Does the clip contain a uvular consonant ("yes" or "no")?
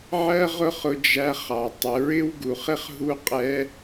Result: yes